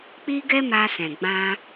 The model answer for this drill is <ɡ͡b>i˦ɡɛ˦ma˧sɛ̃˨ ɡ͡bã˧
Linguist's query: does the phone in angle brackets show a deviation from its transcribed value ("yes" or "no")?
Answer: yes